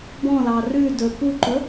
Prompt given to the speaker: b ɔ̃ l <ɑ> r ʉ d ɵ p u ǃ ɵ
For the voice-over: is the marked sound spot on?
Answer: yes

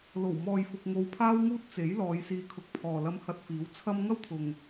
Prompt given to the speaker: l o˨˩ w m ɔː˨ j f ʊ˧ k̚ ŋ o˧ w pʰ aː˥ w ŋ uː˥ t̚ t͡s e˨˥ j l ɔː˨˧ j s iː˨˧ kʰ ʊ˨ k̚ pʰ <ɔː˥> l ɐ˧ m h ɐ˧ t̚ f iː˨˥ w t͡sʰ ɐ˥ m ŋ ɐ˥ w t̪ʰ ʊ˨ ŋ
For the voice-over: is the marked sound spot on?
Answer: no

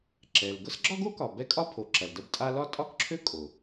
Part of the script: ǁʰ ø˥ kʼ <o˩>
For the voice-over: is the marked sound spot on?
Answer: yes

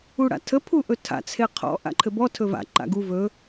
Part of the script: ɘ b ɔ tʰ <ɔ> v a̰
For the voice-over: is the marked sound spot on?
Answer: no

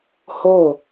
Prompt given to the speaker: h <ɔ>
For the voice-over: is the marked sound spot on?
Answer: no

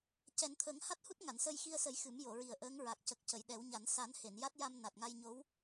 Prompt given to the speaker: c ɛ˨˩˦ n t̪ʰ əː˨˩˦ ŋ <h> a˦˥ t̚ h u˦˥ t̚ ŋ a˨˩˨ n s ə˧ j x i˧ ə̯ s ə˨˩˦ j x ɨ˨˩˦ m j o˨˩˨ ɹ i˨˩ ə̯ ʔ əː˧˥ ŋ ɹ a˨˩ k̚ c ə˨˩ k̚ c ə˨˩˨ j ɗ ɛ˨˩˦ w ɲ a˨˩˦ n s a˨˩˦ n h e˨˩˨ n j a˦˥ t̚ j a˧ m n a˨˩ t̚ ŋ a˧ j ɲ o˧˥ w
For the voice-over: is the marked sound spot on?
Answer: yes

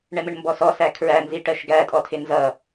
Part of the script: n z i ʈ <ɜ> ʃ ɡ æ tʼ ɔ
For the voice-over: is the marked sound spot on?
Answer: yes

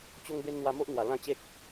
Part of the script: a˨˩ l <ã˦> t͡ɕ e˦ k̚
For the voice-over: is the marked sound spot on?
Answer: no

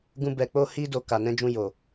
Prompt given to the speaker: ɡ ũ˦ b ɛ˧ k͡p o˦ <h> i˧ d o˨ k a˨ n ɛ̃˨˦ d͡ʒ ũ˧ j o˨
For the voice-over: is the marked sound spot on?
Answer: yes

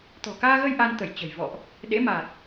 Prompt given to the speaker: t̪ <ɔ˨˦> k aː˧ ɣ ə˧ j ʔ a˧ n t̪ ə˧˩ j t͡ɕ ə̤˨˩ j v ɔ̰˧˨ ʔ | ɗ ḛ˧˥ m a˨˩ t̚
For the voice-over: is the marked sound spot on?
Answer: no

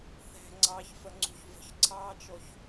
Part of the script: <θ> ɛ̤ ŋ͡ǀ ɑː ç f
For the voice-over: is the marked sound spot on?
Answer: yes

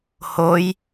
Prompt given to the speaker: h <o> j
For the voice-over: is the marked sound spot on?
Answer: yes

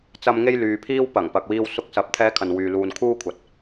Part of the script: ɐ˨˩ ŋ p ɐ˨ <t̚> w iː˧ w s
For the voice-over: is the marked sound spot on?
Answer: no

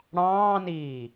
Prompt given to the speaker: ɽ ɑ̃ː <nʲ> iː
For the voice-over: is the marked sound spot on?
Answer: no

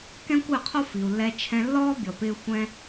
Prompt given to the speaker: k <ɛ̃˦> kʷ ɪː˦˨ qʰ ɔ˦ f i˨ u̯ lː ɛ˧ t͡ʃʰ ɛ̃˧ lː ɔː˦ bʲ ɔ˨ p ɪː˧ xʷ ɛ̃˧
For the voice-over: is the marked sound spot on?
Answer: yes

